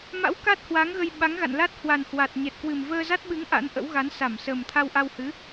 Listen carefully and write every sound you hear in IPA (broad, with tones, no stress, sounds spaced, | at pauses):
m a̰˧˥ w k a˦˥ t̚ h w a˨˦ ŋ ɣ ə˧ j ɓ a˨˦ ŋ ɣ a̰˧˨ n l a˦˥ t̚ h w a˨˩ n h w a˨˩ t̚ ɲ ɛ˨˩ t̚ k w ɨ˨˩ m v əː˧ z a˦˥ t̚ ɓ ɨ˨˦ ŋ ʔ a̰˧˥ n ʔ ə̰˧˥ w ɣ a˨˦ n s a˧˩ m s ə˨˩ m t̪ʰ a˧ w ʔ a˧ w h ɨ˨˦